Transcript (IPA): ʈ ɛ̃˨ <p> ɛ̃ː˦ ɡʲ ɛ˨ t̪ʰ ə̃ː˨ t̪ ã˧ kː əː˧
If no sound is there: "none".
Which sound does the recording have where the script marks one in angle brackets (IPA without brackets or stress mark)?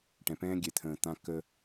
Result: p